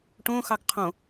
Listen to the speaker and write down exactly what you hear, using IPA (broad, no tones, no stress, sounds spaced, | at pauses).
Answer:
ʈ õ x ɑ ɡ qʰ õ